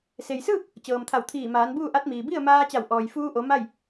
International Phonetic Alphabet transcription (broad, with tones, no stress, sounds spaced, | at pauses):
s e˩ j s ɯː˥˨ k̚ | t͡ɕ ɤː˩ m t̪ʰ a˧˩ w t̪ʰ iː˧˩ m aː˩˧ n b uː˥˨ ʔ a˧˥ t̚ m iː˩ b i˥˨ ə̯ m aː˧ t͡ɕ a˧˩ w ʔ ɔː˩ j f uː˧ ʔ o˩˧ m a˥˨ j